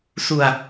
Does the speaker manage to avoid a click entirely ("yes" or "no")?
yes